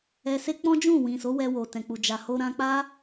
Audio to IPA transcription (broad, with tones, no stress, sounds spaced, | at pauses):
ɛ˧ s e˦ k͡p ɔ̃˦ d͡ʒ ũ˦˨ w ĩ˨ s o˨˦ w ɛ˧ w o˨ t ɛ̃˨ k͡p u˨ d͡ʒ a˨ h o˧ ɾ ã˧ k͡p a˦